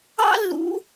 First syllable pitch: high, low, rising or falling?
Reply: high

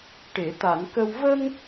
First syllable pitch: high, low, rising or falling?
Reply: low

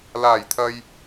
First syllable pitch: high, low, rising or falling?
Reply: low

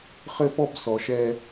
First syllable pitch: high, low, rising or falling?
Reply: high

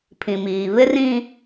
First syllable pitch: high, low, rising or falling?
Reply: low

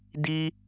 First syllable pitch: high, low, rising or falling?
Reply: high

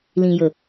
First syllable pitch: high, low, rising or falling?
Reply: low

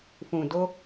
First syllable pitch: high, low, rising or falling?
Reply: low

